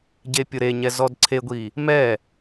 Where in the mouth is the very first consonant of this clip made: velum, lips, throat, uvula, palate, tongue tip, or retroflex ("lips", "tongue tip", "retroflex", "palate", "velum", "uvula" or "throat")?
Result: palate